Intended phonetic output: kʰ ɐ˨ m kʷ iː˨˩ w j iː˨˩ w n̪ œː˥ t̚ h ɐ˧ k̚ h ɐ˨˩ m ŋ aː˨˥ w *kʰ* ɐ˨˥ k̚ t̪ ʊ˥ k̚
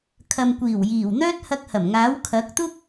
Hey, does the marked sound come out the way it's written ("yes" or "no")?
yes